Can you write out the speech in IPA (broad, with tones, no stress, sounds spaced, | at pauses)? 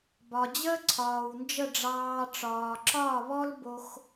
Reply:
b ɒ˨ d͡ʑ əː˦ ǀʰ ɒː˨ w n d͡ʒ ə˦˨ ɖ͡ʐ ɑː˧ ʈ͡ʂ ɒː˨ ǁ ɒː˦˨ β ɔ˦ l b o˧ x